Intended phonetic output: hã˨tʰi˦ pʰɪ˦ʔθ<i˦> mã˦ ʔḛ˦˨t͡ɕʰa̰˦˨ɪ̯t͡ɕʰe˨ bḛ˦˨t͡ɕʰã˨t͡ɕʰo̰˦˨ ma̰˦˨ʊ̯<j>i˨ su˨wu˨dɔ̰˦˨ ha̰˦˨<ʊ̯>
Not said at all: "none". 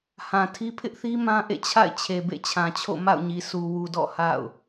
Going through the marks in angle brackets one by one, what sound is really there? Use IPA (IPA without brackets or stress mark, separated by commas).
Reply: i˦, ɲ, ʊ̯